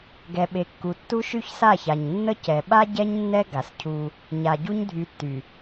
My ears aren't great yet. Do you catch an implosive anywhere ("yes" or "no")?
yes